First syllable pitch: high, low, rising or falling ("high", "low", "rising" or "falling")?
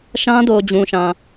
high